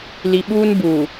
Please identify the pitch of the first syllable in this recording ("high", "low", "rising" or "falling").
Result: low